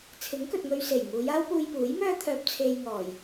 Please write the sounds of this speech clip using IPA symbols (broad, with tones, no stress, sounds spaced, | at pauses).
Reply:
t͡sʰ ɪ˨˥ ŋ k ɵ˨ t̚ ŋ ɵ˧ ɥ s e˨˩ j ŋ uː˨˧ j aː˥ w p uː˧ j p uː˨˥ j m œː˥ t̪ʰ œː˧ p̚ t͡sʰ e˧ j ŋ ɔː˨˩ j